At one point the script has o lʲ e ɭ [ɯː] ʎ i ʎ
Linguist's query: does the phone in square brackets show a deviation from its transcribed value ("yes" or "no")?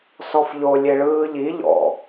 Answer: no